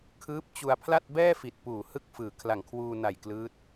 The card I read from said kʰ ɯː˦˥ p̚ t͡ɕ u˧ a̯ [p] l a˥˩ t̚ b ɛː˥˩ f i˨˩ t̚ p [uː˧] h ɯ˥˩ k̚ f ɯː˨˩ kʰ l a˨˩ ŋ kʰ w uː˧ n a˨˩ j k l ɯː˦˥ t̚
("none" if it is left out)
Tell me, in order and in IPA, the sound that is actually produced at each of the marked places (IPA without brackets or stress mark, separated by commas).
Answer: pʰ, uː˨˩